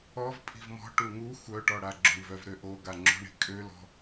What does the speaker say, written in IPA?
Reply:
ɔ v pʼ i̤ v m ɔ̤ ʈ u ŋ u xʷ œ ʈ ɔ ɽ a ɡ͡ǁ o ɳ v œ v ɾ ø ʔ o ɡ a ŋ͡ǁ o̤ ɳ i̤ kʼ ø l ɔ̤

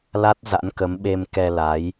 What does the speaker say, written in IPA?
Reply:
l a˦˥ t̚ z a̰˧˥ n k ə˨˦ m ɓ e˧ m k ɛ˧ l a˨˦ j

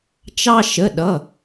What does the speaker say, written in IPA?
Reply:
t͡ʃ ɑ˧ ʃ ə˩˧˩ ɗ ʌ˩˧˩

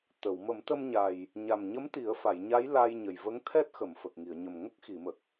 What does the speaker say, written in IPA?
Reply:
t̪ ə˨˩˨ w m ə˨˩˦ m t̪ ə˧ m ɲ a˨˩ j | ɲ a˨˩ m ɲ ə˧˥ m t̪ i˨˩˦ ə̯ f a˨˩˨ j ɲ a˧˥ j l a˧ j ɲ ə˨˩ j v ə˧˥ ŋ t̪ʰ ɛ˦˥ t̚ x ə˨˩˨ m f ə˨˩ k̚ ŋ i˨˩˨ ə̯ ɲ ə˨˩ m ŋ ə˦˥ k̚ x i˨˩˨ m ə˨˩ k̚

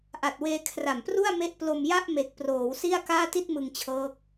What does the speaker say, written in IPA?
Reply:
ʔ a˨˩ t̚ w eː˧ kʰ r a˨˩ m p r u˥˩ a̯ m e˥˩ ʔ p l o˧ m j a˥˩ ʔ m e˨˩ k̚ p r oː˩˦ w s i˥˩ a̯ k aː˥˩ t i˥˩ t̚ m ɯ˧ ŋ t͡ɕʰ ɤː˦˥ k̚

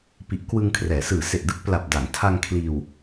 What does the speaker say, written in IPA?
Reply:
p i˨˩ ʔ k w ɯ˧ ŋ kʰ r ɛː˩˦ s ɯː˨˩ s e˨˩ ʔ d ɯ˦˥ k̚ p l a˨˩ p̚ d a˩˦ ŋ tʰ a˧ ŋ kʰ l iː˧ w

